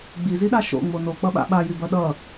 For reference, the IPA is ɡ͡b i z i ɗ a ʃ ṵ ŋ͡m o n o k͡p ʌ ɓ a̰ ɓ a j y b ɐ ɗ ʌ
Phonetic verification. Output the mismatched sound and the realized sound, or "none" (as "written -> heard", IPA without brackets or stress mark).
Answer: ṵ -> o̰